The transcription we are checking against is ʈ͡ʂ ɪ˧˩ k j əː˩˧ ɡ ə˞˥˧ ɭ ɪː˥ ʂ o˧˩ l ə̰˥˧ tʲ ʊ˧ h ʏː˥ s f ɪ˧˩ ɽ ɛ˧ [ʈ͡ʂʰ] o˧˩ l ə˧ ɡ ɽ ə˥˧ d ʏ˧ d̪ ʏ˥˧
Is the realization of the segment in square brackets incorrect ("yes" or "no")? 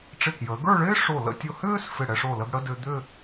yes